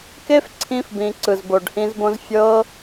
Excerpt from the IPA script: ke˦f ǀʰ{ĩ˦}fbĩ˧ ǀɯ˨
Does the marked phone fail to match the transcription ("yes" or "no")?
no